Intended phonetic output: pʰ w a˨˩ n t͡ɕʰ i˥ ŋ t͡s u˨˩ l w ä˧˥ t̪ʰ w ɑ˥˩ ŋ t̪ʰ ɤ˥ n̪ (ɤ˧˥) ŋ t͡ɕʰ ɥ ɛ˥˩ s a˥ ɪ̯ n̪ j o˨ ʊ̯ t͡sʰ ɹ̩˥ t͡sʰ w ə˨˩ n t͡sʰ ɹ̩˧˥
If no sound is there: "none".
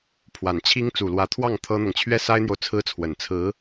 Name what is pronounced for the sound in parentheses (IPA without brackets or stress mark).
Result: ɤ˨